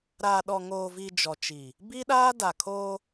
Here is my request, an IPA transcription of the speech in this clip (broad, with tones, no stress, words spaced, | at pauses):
ɾaː˨ɗɔ˨ŋoː˨vi˨ d͡ʒɔ˨t͡ʃi˨ | bi˦ɗaː˦da˨kʰoː˦